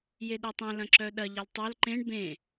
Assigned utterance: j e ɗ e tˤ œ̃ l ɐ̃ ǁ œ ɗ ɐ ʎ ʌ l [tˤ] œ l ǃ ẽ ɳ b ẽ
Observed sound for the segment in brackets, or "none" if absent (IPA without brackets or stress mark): tˤ